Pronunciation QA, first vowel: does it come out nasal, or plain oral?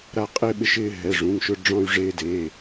oral